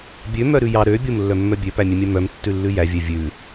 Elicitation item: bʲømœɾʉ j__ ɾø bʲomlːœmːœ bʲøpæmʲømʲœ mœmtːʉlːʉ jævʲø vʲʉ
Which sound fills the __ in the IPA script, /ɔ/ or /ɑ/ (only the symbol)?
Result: ɑ